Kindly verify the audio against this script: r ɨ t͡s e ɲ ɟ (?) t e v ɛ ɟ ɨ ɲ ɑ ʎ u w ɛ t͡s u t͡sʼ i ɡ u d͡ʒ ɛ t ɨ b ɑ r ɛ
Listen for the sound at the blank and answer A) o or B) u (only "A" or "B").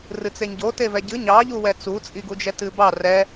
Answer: A